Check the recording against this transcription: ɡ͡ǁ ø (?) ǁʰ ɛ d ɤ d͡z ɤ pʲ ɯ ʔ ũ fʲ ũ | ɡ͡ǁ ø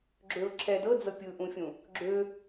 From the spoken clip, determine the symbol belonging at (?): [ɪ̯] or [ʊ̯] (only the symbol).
ʊ̯